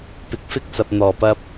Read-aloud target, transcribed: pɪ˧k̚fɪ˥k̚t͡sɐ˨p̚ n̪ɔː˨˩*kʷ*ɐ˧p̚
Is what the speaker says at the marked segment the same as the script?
no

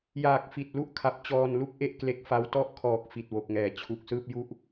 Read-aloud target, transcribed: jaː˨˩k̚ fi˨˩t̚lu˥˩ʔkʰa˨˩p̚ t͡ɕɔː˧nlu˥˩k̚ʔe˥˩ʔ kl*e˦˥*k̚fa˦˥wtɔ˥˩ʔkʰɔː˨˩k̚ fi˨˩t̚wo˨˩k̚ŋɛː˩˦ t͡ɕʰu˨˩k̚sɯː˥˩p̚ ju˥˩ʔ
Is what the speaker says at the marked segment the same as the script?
yes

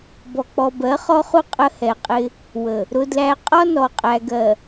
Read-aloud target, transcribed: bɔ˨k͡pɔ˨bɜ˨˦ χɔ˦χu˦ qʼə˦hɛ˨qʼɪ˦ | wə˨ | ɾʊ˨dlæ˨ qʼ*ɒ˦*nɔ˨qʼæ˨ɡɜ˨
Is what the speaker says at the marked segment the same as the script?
yes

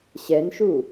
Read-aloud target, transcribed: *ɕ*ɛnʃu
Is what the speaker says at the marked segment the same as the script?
yes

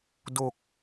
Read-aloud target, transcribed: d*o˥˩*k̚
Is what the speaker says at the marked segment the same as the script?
no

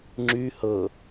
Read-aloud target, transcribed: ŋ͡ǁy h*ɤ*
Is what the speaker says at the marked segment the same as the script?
yes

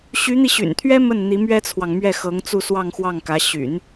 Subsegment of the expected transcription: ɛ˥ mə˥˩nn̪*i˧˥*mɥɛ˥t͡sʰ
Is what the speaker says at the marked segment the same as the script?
yes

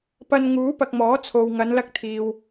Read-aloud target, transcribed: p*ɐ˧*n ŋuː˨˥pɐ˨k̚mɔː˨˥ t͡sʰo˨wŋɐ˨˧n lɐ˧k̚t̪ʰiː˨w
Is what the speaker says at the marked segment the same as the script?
yes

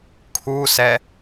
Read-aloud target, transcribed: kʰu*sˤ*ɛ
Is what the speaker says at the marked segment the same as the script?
no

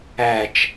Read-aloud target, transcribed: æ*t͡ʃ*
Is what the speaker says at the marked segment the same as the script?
yes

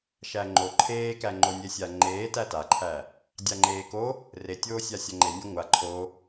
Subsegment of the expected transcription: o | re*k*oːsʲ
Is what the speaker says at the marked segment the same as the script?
no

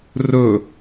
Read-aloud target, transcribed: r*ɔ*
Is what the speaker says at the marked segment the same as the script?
no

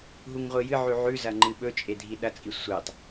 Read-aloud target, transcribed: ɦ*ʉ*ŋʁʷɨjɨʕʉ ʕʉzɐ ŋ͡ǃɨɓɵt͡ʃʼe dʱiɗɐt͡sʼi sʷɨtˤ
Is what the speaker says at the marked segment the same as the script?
no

